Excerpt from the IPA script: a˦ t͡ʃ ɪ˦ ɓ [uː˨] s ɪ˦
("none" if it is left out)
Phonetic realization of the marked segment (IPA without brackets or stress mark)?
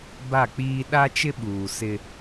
uː˨